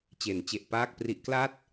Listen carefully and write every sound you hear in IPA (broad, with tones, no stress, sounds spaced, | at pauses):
t͡ɕ e˩˦ n t͡ɕ e˨˩ ʔ p aː˥˩ k̚ p r i˦˥ ʔ k l a˥˩ t̚